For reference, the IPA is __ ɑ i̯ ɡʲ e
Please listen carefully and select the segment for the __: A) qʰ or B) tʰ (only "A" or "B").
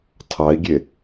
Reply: B